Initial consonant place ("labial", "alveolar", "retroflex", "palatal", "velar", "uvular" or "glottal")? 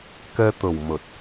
velar